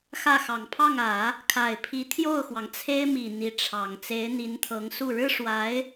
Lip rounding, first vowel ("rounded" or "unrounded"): unrounded